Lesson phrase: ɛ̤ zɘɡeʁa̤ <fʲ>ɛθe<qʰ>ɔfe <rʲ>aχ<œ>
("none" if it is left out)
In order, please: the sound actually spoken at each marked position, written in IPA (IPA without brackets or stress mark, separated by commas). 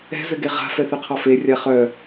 f, qʰ, rʲ, œ